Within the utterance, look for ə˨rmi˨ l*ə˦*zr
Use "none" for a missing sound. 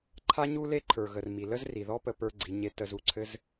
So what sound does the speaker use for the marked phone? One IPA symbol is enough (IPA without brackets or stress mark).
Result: ə˦